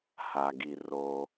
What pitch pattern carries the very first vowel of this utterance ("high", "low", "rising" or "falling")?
low